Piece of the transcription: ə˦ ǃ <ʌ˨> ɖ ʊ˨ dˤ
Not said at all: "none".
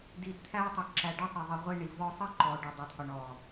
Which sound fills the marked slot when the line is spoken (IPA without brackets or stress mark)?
ɔ˨